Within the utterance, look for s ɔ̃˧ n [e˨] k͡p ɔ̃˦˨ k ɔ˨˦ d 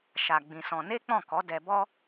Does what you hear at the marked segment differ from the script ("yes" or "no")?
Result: yes